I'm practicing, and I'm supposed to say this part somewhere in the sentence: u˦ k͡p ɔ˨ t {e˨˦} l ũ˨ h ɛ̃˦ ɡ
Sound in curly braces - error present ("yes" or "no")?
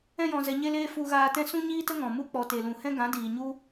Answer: yes